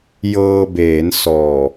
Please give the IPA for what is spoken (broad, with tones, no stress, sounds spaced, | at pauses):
j ɤː˧ b eː˩˦ n s ɔː˨˩